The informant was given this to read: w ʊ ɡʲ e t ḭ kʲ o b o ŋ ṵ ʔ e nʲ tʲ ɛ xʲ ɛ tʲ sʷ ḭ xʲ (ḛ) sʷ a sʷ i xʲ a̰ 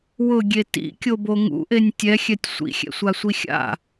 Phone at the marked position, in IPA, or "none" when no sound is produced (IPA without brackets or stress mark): ɛ̰